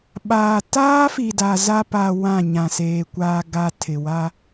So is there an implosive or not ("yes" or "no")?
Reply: yes